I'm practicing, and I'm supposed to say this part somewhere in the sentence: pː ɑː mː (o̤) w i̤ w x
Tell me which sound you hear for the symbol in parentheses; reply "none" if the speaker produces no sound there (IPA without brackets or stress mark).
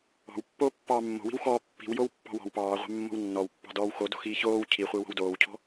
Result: o̤